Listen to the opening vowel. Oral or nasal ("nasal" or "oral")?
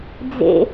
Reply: oral